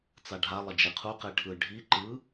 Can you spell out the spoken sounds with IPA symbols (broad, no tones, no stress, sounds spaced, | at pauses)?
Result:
t͡s a ɖʱ a lˠ ʌ d͡ʒ e qʰ u q e ʈʰ ɯ ɖʱ i ǃ ɯ